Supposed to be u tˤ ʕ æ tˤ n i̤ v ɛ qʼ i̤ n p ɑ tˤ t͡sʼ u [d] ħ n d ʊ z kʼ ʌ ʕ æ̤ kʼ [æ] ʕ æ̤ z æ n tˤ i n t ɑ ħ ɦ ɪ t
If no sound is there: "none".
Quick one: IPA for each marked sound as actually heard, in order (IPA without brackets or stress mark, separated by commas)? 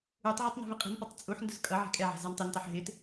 none, ɛ